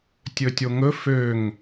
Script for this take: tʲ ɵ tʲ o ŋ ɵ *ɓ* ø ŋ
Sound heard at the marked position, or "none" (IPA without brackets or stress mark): f